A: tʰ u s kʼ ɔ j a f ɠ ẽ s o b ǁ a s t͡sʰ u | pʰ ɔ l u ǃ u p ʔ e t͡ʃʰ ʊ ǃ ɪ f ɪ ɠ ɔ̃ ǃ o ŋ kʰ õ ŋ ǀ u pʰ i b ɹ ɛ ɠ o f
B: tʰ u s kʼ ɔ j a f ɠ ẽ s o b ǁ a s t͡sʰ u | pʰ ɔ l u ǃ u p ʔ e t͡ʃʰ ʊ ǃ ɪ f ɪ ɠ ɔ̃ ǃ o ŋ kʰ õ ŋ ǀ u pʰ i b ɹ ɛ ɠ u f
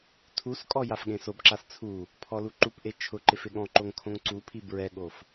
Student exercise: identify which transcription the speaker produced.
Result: A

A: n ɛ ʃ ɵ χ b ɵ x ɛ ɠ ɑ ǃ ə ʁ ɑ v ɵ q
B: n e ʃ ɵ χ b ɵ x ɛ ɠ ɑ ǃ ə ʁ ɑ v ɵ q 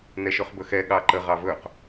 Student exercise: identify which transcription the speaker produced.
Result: A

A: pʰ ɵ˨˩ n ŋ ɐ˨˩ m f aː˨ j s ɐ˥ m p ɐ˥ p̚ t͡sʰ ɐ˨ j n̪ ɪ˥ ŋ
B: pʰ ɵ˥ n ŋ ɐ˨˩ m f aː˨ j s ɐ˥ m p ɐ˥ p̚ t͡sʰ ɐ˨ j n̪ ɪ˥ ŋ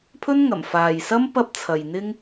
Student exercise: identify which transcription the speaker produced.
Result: B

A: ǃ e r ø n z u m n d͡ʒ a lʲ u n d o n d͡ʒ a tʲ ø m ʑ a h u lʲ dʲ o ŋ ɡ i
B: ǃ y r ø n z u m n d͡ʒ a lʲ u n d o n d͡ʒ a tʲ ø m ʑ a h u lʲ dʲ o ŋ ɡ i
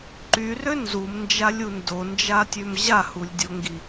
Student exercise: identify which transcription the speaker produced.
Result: B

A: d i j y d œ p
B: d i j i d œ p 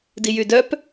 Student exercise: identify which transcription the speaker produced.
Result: A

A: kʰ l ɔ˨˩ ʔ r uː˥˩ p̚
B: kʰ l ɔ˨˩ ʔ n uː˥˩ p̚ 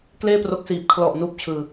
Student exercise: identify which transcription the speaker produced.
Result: B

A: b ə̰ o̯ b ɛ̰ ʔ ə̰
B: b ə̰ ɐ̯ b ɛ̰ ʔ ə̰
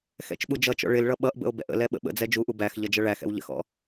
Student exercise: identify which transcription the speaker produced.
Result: A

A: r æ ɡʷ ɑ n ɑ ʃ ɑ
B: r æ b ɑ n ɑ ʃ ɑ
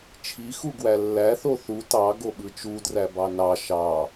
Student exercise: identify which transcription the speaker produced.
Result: B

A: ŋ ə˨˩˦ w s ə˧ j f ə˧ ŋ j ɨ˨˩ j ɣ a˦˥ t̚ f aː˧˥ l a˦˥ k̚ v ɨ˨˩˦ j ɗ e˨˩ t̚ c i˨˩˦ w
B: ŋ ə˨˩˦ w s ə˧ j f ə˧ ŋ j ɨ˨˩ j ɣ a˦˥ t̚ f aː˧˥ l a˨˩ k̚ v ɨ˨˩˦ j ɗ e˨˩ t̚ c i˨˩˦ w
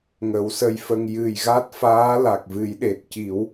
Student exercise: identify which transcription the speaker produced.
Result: B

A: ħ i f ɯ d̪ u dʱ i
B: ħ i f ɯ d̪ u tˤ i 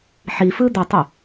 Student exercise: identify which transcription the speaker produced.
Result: B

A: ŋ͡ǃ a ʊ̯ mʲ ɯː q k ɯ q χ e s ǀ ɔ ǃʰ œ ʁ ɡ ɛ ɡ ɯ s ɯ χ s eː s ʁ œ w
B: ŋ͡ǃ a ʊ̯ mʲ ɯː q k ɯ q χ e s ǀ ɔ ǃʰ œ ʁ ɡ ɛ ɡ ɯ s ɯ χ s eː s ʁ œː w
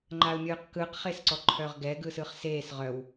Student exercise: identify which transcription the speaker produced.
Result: A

